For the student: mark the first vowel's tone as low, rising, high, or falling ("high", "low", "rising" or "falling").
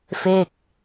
falling